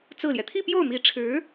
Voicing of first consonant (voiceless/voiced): voiceless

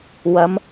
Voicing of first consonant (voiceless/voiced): voiced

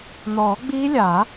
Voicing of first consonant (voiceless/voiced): voiced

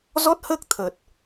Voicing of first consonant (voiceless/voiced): voiced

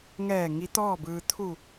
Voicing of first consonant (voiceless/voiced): voiced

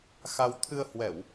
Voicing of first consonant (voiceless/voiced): voiceless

